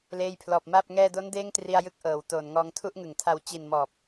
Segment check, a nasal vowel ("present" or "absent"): absent